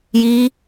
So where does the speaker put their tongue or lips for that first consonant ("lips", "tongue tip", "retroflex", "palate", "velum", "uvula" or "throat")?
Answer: palate